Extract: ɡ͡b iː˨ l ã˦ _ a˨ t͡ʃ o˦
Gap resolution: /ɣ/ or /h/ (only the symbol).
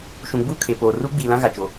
ɣ